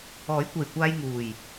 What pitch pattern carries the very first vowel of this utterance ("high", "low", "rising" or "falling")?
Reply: rising